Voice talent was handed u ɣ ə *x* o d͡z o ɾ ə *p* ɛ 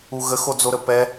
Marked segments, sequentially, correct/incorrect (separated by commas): correct, correct